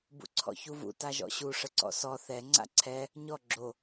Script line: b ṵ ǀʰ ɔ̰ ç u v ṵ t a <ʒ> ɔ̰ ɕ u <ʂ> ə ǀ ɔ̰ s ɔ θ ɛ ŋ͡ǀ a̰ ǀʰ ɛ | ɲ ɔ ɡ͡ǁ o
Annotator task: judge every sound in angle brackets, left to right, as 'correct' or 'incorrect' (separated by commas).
correct, correct